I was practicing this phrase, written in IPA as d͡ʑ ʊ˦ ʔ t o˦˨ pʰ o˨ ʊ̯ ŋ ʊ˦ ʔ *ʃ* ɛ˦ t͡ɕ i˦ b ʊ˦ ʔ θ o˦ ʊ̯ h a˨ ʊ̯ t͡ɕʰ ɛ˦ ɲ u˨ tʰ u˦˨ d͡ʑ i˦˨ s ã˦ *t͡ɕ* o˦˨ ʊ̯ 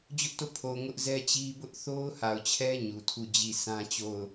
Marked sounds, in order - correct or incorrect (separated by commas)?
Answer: incorrect, correct